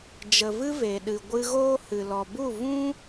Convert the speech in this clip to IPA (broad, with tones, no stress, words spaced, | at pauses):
d͡ʒə˨vɨ˧ ve˨ɗɨ˨ ɡʷɨ˧ɣoː˦hɨ˨lɔ˨ bu˦˨vũ˦